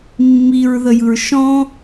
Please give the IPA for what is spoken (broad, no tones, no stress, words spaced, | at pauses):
mːiɹðəjɯɹ ʃɔ̃